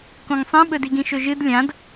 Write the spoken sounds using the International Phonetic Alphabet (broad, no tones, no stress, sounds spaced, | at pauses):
k õ ŋ sˤ ẽ ɓ ɵ d i ɡ ĩ ʃ ɵ ʒ ɨ d lʲ ã d